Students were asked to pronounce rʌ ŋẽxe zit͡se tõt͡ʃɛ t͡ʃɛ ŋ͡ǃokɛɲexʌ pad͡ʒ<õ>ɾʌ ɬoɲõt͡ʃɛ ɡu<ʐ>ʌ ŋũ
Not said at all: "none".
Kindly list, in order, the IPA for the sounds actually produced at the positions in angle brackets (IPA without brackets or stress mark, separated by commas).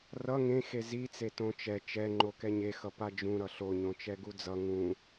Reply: ũ, d͡z